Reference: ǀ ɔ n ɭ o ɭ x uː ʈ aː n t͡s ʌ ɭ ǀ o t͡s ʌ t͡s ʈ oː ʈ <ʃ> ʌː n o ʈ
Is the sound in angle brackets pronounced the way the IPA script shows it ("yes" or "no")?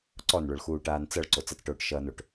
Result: yes